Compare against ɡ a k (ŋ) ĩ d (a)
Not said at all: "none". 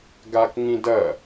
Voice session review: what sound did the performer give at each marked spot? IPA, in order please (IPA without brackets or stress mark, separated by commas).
ŋ, ɐ